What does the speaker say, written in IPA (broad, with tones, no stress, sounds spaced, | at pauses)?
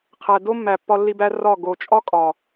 qʰ æ˨ d o˦ mː æ˨ pː ɒ˦ lː i˦ b æ˦ r ɒ˦˨ ɡ o˨ t͡ʃʼ ɒ˦ kʼ ɒ˨